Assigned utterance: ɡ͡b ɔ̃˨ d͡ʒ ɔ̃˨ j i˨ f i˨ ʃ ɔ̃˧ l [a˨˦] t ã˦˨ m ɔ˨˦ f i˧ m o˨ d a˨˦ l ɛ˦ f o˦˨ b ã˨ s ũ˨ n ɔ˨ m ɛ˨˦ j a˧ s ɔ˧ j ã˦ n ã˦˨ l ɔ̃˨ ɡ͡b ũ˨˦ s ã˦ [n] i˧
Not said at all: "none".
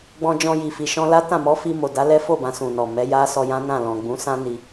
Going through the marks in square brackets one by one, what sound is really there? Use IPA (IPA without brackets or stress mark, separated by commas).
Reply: a˦, n